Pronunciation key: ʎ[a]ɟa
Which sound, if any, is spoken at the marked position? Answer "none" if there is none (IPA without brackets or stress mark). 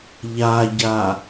a